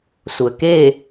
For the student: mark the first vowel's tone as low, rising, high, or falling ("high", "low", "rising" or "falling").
low